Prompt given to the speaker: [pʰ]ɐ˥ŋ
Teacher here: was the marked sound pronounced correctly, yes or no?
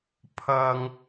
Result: yes